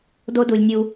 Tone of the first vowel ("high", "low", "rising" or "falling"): high